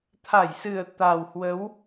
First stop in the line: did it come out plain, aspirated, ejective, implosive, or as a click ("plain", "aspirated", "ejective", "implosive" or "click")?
aspirated